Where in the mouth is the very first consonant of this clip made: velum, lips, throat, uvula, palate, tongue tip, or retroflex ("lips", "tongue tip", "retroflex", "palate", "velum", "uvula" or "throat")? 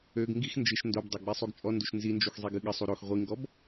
velum